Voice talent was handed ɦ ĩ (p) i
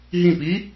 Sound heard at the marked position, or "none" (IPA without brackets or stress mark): p